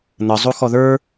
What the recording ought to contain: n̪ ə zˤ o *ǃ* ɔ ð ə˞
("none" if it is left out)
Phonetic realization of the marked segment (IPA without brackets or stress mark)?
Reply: x